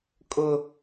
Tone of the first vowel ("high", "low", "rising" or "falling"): high